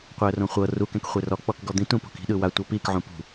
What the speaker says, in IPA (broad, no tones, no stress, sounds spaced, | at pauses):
qʷ ɛ ə̯ r õ χʷ ɤ r u k ɛ̃ k χʷ e r ɔ k͡p ɔ k ɡ ɔ d̪ ĩ t ũ p o̤ k i̤ ɗ ɯ w a tʷ ɤ p i k ʕ ũ p ṳ